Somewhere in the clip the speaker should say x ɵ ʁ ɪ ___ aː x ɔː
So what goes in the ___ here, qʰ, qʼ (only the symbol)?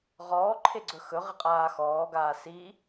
qʼ